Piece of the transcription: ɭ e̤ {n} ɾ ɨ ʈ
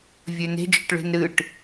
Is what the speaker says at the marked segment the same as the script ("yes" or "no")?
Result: yes